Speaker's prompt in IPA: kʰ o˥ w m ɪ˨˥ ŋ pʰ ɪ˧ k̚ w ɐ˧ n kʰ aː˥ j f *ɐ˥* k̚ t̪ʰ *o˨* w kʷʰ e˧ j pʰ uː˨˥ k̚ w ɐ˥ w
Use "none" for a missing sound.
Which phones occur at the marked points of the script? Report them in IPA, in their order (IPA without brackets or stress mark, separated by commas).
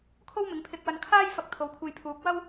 ɐ˧, o˨˧